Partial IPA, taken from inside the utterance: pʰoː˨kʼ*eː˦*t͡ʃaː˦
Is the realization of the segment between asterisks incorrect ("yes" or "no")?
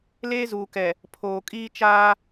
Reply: yes